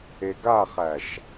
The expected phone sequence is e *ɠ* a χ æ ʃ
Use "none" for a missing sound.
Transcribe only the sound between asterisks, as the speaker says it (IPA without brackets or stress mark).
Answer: ɡ